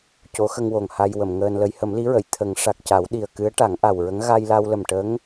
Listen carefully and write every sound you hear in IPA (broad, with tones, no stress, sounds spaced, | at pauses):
c o˧˥ x ə˧ ŋ w o˨˩ ŋ h a˧ j w ə˨˩˨ m ŋ əː˧ n l ə˧˥ j h ə˨˩˦ m l i˧˥ ɹ ə˨˩˨ j t̪ʰ ə˨˩˦ ŋ ʂ a˨˩ k̚ c a˨˩˦ w ɗ i˨˩ ə̯ k ɨ˧˥ ə̯ ʈ a˨˩˦ ŋ ʔ a˨˩ w ɹ ə˧˥ ŋ ɣ a˧ j l a˧ w l ə˨˩ m ʈ ə˧˥ ŋ